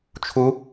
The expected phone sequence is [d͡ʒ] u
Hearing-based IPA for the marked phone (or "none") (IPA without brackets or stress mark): t͡ʃʰ